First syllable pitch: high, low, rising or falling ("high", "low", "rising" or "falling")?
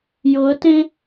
rising